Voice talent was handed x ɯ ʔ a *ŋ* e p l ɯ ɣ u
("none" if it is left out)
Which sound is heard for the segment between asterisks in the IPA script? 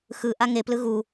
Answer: ŋ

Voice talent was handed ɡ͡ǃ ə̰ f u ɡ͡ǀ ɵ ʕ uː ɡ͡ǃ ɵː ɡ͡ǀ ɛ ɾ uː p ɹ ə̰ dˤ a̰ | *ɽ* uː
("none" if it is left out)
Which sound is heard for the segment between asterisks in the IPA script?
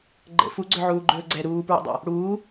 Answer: ɽ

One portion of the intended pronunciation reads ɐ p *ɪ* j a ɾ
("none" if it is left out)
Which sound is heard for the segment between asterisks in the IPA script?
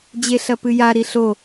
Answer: ɨ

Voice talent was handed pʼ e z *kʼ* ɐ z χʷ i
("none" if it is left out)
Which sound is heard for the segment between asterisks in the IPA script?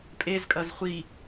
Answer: kʼ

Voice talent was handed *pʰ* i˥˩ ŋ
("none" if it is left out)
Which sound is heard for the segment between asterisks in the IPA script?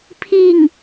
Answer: pʰ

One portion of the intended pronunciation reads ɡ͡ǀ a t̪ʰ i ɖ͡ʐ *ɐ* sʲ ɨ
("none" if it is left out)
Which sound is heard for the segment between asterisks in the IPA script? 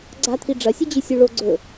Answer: ɐ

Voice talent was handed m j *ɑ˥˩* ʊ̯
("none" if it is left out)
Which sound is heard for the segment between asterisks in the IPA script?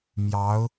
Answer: ɑ˧˥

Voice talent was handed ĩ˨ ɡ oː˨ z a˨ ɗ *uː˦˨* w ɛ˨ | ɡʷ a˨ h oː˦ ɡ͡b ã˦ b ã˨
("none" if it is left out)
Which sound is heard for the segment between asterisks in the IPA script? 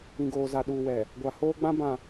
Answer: uː˨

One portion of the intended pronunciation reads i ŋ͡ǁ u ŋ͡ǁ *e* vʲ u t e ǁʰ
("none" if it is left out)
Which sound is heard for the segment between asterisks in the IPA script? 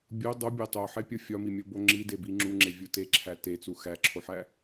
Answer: e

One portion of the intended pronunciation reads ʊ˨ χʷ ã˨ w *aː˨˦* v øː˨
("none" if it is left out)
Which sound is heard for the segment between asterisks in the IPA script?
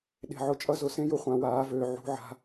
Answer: aː˨˦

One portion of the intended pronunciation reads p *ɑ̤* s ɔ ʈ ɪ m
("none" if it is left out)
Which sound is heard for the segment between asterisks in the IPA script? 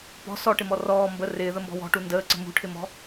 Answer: ɔ̤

